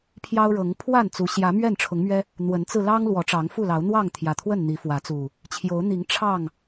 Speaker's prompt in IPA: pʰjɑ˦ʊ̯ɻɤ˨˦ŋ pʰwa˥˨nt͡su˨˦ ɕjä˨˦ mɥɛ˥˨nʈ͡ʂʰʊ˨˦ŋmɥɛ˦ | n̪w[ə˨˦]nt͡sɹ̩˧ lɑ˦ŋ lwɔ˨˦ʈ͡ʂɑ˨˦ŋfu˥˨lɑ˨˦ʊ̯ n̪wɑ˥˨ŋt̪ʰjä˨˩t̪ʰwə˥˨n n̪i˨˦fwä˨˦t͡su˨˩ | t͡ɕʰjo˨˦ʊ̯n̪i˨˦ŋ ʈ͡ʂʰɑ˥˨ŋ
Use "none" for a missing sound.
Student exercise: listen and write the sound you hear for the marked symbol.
ə˨˦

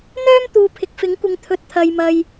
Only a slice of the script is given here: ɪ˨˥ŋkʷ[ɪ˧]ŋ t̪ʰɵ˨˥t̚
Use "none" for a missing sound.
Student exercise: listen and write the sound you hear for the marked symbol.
ɪ˨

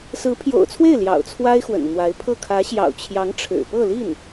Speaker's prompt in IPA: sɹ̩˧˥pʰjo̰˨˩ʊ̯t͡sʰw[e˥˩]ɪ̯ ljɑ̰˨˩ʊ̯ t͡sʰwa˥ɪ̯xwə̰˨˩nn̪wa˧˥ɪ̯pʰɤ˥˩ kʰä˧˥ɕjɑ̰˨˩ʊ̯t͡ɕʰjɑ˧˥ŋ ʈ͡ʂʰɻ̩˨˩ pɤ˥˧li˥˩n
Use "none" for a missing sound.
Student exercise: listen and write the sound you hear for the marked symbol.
e˥˩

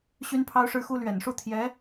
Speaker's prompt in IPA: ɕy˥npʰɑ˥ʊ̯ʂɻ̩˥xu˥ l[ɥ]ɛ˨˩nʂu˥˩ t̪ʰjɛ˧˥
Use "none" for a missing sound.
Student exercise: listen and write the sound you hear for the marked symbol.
ɥ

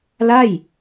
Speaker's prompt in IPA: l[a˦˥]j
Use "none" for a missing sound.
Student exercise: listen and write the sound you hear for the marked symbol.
a˥˩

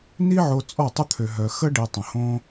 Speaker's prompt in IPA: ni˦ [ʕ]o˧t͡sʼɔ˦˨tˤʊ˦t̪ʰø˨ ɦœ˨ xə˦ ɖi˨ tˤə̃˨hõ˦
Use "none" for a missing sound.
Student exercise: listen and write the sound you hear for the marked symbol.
ʕ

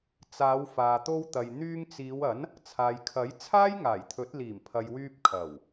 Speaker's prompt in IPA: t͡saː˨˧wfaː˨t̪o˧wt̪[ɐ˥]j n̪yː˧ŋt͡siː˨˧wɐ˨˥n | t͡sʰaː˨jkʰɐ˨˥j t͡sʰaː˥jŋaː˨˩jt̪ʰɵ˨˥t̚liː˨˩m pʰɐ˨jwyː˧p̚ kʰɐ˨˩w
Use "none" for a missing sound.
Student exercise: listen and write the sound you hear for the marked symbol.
ɐ˨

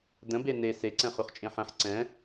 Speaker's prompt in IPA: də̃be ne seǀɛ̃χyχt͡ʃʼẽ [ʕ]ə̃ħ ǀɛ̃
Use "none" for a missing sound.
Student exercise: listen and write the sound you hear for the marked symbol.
ħ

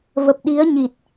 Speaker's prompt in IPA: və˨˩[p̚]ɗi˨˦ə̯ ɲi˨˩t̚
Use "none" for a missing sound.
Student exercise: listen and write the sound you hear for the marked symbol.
p̚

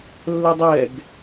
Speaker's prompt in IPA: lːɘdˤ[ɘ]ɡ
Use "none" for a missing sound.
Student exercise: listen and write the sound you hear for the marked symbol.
ɛ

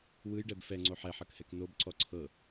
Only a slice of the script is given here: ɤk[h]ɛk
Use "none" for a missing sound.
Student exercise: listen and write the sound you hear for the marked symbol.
h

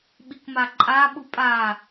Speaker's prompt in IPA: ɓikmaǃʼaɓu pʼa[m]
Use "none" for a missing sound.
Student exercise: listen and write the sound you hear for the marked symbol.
none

